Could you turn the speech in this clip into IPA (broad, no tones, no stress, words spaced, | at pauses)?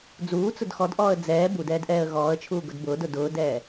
d͡zuːt͡sʊd xɔdʔɔːə̯ d͡zɛː budɛːdʔɛːə̯ ɣɔːə̯t͡ʃʰuːɡʊd bʊːdʊ dʊːdɛː